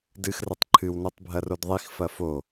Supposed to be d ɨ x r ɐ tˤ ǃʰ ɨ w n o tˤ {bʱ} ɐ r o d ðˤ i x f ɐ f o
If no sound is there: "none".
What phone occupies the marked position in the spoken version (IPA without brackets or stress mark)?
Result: bʱ